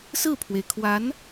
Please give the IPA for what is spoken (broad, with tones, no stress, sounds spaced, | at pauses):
s ɹ̩˥˩ pʰ w e˩ ɪ̯ kʰ w a˧˥ n